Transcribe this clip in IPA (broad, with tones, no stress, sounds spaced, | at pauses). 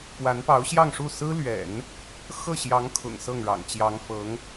p w a˧˥ n p ɑ˧˥ ʊ̯ ɕ j ɑ˥˧ ŋ ʂ u˥˩ s ɹ̩˥ l ɥ ɛ̰˨˩˦ n | x ɤ˥˩ ɕ j ɑ˧˥ ŋ kʰ ʊ̰˨˩ ŋ s ɤ˥˩ ŋ ɻ ɑ̰˨˩ ŋ t͡ɕ j ɑ˧˥ ŋ f ɤ˧˥ ŋ